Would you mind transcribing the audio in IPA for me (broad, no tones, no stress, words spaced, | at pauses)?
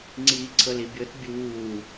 ŋ͡ǀiːǀʰɤlibʲɤt bʲuː